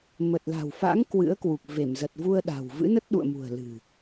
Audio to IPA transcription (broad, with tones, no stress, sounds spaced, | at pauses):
m ə˨˩ t̚ l a̤˨˩ w f a̰˧˥ ŋ k w ɨ̰˧˥ ə̯ k w u˨˩ k̚ v e˧˩ m z ə˨˩ t̚ v u˧ ə̯ ɗ a̤˨˩ w v ɨ̰˧˥ n ə˦˥ t̚ ɗ ṵ˧˨ ə̯ m ṳ˨˩ ə̯ l ɨ̤˨˩